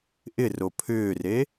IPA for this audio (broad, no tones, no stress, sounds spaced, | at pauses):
ʔ ɪ r o pʰ ʏː r e